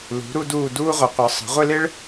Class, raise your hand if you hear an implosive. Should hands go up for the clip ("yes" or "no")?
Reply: no